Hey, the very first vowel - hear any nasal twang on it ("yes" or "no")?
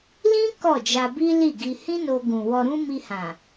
yes